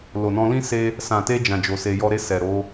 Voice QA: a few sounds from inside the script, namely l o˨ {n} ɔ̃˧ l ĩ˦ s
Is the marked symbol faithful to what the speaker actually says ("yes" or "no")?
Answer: yes